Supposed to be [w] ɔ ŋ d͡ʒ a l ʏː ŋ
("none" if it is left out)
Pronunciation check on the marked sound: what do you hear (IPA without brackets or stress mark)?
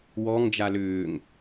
w